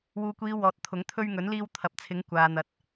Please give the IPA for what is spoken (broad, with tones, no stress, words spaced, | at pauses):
wuː˨kʷiː˨˧ wɔː˨˥t̚t̪ʰʊ˨˥ŋ t̪ʰɵ˧ɥŋɵ˨˥nliː˧w t̪ʰɐ˨p̚t͡sʰɪ˨˥ŋ kʷaː˨n̪ɐ˨˥t̚